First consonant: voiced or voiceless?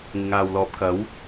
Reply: voiced